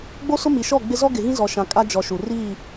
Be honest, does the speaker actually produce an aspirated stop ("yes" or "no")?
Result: no